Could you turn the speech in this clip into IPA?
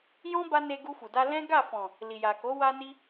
j ɔ̃˦ b a˦ n e˧ ɡ u˧ f u˨ d a˧ l ɛ̃˦ ɡ a˦˨ f ɔ̃˨ | l i˨ j a˨ k o˨˦ w a˧ n i˧

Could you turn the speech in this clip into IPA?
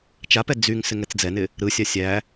t͡ʃ a p ɛ d͡z y ŋ s ɪ ŋ ɛ t͡s d͡z ɛ n ɪ | ɾ ɯ sʲ a sʲ æ

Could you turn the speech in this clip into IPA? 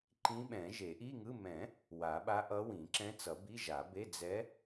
ǃ ĩ˧˥ ɓ ɛ̃˨˩˦ ʒ e˨˩˦ ʔ i˧˥˧ ŋ ɯ˧˥˧ m ɛ̃˨˩˦ | w a˨˩˦ ɓ a˧˥ ʔ ʌ˧˥ w ĩ˨˩˦ ǁ ɛ̃˧˥ t͡s ʌ˨˩˦ b i˧˥˧ ʒ a˨˩˦ b e˧˥˧ d͡z ɛ˧˥

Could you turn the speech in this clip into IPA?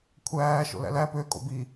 kʷʰ æː ʃ o̰ l æ̰ l æ p ø kʼ o̰ b i

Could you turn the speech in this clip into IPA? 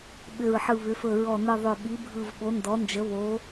ɓ ʏ˨˩ ɹ ħ ɯ˨˩ β ʏ˩˧ f ɵ˨˩ ɹ ɔ˨˩ n ɯ˨˩ ðˤ ɵ˨˩ ɓ i˩˧ bʱ ɯ˨˩ v ɓ o˩˧ n d ɔ˩˧ n d͡ʒ ə˩˧ β o˩˧

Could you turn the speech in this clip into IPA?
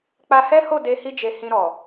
k͡p a˧ h ɛ˦ h o˦˨ d e˧ h i˧ d͡ʒ e˨ h ĩ˧ ɾ ɔ˨

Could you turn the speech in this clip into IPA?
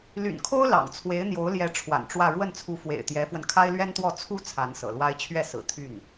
l y̰˨˩ n kʰ o˥ ʊ̯ l ɑ̰˨˩ ŋ t͡sʰ w e˧˥ ɪ̯ n̪ j o˧˥ ʊ̯ l j ɛ˧˥ ʈ͡ʂʰ w a̰˨˩ n ʈ͡ʂ w ä˥˧ ɻ w ə˥˩ n t͡sʰ u˧˥ f w ḛ˨˩ ɪ̯ t̪ j ɛ˧˥ f w ə˧ n kʰ a˥ ɪ̯ l ɥ ɛ˥ n t̪ w ɔ˥˩ t͡sʰ u˥ t͡sʰ a˧˥ n s ɤ̰˨˩ l w a˥ ɪ̯ t͡ɕʰ ɥ ɛ˥˩ s ɹ̩˨˩ t̪ʰ y˥˩ n

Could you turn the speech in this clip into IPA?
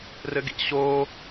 r ɘ ɡ ḭ ɕ o

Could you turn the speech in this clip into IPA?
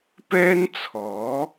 p ɛː˥ n t͡sʰ ɔː˨˥

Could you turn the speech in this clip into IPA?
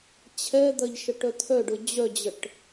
t͡ɕʰ ɛ d̪ ɐ ʎ ʃ ə ʈ œ t̪ʰ œ ɖ ʊ d͡ʑ œ d͡ʑ ə ʈ

